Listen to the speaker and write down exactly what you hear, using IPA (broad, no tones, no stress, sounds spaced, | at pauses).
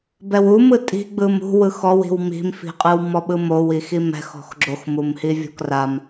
b ɛ w u m ɯ tʼ i̤ ɡ͡b ɯ m ṳ w ɯ x ɔ w i̤ w m i̤ m f i̤ qʼ ɯ w m ɔ ɓ ɯ m o w i x i m ɛ̤ x ɔ̤ x ɡ͡ǁ o x m u m h i vʲ ɔ̤ k r a m